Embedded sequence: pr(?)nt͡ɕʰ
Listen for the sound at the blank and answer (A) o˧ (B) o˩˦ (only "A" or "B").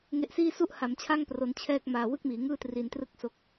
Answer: A